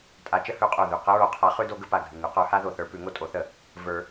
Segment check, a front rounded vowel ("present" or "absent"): absent